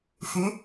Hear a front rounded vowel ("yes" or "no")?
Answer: yes